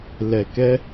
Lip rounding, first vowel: unrounded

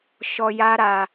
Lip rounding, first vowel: rounded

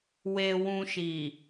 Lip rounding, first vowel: unrounded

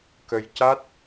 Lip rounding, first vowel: unrounded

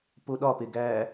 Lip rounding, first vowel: rounded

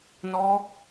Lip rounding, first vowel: rounded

